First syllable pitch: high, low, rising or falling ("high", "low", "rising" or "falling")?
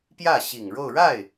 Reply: falling